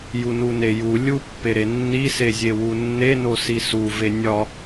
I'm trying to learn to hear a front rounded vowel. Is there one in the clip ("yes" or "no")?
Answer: no